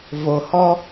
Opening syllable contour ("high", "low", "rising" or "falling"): low